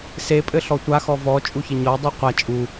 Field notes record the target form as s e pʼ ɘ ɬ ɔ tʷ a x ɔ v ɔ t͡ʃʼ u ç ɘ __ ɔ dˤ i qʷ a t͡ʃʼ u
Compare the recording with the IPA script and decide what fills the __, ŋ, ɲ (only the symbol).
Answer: ɲ